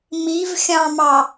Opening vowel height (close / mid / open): close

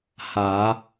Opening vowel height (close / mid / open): open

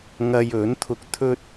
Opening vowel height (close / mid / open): open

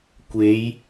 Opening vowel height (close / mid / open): mid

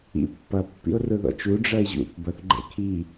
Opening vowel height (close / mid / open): close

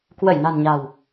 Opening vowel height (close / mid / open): mid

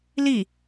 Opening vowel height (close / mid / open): close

